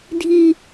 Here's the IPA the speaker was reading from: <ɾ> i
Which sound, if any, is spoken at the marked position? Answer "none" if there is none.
dʱ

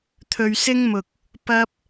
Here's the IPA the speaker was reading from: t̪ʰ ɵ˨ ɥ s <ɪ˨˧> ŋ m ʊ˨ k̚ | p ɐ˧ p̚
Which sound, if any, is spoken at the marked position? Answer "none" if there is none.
ɪ˥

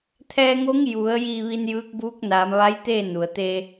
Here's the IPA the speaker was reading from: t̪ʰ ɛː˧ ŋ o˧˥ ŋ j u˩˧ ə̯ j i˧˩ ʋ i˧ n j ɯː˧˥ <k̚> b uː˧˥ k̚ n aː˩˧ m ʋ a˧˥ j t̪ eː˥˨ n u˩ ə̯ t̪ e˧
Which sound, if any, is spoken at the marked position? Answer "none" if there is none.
k̚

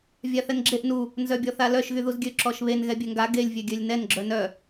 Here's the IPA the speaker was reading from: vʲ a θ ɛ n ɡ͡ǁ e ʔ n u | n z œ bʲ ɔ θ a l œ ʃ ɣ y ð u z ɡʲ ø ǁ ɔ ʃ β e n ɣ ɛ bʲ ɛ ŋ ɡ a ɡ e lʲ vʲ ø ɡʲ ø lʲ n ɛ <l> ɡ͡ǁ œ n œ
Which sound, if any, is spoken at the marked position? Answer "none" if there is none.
n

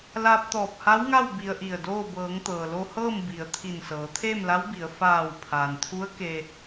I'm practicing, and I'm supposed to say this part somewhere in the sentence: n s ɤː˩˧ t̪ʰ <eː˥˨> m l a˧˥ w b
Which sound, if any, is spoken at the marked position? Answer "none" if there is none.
eː˥˨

